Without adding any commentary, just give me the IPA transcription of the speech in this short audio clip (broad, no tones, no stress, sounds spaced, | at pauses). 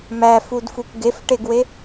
m æ f u d f u kʷ ɡ e f ʈ e ɡ w e